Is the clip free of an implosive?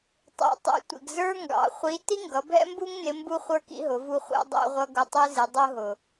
yes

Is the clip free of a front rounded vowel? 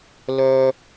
no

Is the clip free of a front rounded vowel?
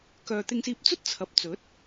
no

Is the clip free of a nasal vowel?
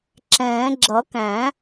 no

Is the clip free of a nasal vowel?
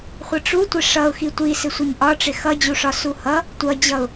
yes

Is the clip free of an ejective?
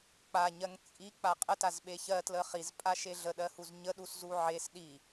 no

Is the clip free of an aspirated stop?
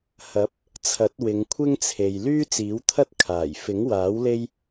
no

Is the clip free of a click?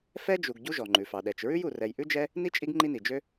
no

